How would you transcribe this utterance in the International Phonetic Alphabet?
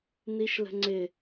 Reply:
n i ʃ l ə̤ ŋ͡ǀ ɪ

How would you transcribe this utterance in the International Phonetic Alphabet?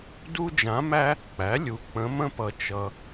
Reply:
d u˥ d͡ʒ ã˧˥ m æ˥ | k͡p æ˩˥ lʲ u˨ k͡p ə̃˧˥ m ə̃˥ p ʌ˨ t͡ʃ ʌ˨

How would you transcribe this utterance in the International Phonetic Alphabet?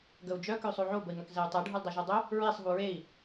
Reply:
ɡ ə u̯ d͡ʒ œ k ø sˤ o ʕ o b ə i̯ ŋ œ k z ɛ y̯ tˤ e ɖʱ u l dˤ ø ʒ o dˤ ø | ɹ e sˤ ɦ u ɹ e i̯

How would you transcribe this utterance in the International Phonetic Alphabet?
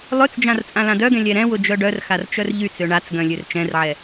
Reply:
lˠ ø t͡s d͡ʒ ã r t͡sʼ ã l ã d œ ɡ ɛ̃ lʲ ɛ ɾ ɛ̃ w ʊ d͡ʒ œ ɖ œ r x a r t͡ʃ œ r ʎ y t͡s ø ɳ a t͡s ɡ œ̃ lʲ ø r t͡ʃ ɛ̃ r ʕ ɛ

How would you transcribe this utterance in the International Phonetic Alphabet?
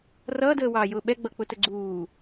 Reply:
r ʌː d əː w ɑː j ʊː ɓ ɛ ɡ͡b ʌ k͡p ʊ t ə ɡ͡ǀ uː

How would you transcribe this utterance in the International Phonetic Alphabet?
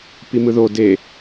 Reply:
p i m ɯ ð o d e

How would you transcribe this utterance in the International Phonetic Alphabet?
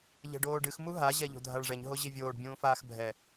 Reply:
ʎ ɛ̤ ɖ oː ɖ ɨ x m u ɦ a ʑ ɛ ʎ o̤ dʱ a ɭ ʐ ɛ ɲ ɦ o ʑ i vʲ oː ɖ bʲ ũː f aː x bʱ ɛ

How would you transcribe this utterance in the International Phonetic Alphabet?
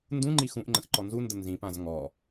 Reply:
n d ũ ŋ͡ǃ i x ũ ʔ ŋ͡ǃ ə̃ x ǃ ɔ n z u n d ə n z ĩ p ã z ŋ ɔ

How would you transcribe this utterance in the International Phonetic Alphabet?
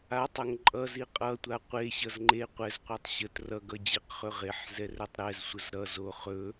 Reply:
a tˤ ɵ ŋ ǃʼ ʌ z i qʼ ʌ tʷ a qʷ e ɕ ʌ z ŋ͡ǃ e qʷ ɛ z qʷ i tˤ ɕ ə t r ʌ ɡ ʌ d͡ʑ e q χ ɵ ʁ e ħ z ɛ r ɛ tˤ ɾ ɛ z sʷ ə z ɾ ʌ z o χ ɵ

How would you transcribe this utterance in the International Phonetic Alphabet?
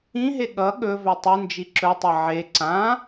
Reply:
ĩ ɦ e ɠ ʌ ɠ ɵ v ɵ tˤ ɯ n d͡ʒ i ǁ ɵ tˤ ʌ ʕ e ǀ ã

